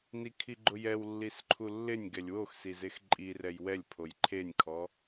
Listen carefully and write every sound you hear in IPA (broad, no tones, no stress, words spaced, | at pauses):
nikʰiɡ͡ǃʊjɛw lːisǃʰulːɪnʲ ɡɛlʲwox sizexǃʼirɛj wɛlʲpʰoj ǃʰenʲkʰɔ